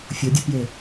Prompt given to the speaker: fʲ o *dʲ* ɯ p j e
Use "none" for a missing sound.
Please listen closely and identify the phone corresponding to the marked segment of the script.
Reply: dʲ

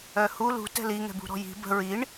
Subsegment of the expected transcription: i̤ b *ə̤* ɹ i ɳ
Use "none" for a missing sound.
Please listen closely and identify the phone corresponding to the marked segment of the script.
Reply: ə̤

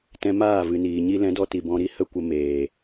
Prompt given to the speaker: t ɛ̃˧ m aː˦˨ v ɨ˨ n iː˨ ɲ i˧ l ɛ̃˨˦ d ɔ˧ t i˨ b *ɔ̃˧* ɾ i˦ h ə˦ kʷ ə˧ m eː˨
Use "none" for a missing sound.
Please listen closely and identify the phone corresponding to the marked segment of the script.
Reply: ɔ̃˧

